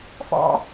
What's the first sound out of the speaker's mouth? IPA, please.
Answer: f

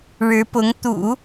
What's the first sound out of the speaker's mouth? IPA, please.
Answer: ɻ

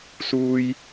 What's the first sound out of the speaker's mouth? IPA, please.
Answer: s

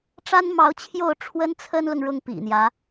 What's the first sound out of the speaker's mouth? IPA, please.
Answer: ʈ͡ʂ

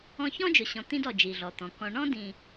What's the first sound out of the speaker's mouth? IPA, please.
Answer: ɔ̃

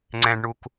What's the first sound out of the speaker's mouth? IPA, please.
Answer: ŋ͡ǀ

